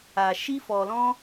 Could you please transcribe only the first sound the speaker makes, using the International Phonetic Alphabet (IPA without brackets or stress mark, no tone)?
a